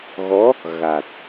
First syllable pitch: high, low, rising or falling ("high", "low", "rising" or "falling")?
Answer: rising